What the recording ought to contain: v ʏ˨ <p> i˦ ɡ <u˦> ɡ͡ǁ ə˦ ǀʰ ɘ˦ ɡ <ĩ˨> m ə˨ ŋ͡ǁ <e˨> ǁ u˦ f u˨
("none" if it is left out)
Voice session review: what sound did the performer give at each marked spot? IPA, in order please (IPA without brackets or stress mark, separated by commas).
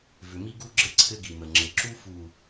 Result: m, u˦, i˨, ɘ˨